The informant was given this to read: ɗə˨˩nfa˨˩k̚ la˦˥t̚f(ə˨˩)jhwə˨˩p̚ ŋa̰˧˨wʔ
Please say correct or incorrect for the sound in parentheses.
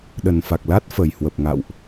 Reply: correct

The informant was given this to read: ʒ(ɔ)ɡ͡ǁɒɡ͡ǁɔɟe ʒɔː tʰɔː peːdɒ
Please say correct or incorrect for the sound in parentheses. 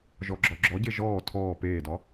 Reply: correct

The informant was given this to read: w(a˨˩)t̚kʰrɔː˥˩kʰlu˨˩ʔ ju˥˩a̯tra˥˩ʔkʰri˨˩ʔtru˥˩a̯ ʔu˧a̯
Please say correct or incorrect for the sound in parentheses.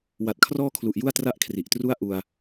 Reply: correct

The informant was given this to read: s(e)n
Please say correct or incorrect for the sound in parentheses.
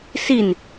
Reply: incorrect: i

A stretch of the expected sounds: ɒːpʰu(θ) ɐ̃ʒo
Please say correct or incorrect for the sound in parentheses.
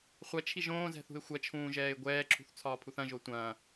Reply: correct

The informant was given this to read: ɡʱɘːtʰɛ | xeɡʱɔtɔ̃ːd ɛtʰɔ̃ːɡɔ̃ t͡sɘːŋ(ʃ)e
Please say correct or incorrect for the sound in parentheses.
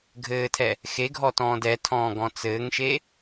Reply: correct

